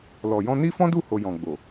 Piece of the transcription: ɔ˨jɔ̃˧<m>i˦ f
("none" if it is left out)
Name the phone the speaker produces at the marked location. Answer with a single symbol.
n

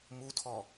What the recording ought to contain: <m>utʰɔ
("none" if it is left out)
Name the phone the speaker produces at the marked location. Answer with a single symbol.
m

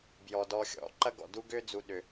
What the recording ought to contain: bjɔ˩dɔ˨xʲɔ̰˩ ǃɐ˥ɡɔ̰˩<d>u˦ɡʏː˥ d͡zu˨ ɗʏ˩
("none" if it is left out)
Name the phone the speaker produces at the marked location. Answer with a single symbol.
d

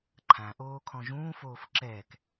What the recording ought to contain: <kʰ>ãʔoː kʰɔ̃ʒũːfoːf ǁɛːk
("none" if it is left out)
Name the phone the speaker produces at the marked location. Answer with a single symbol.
ǃʰ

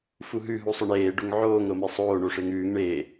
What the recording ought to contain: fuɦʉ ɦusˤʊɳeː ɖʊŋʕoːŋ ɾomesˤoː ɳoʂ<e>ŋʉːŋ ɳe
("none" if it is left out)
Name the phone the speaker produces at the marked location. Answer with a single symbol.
e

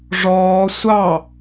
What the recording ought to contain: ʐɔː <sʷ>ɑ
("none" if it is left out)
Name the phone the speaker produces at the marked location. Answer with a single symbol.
sʷ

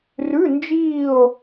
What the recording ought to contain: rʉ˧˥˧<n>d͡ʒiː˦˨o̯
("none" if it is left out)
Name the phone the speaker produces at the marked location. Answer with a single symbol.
n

